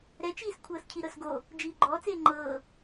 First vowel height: mid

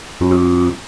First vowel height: high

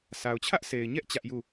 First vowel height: low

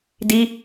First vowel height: high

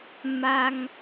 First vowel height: low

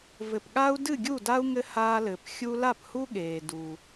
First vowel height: mid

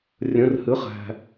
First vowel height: mid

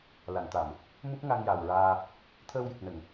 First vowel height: low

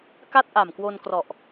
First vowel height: low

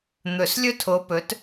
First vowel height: mid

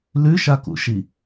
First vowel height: high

